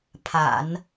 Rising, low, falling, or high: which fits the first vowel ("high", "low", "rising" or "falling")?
low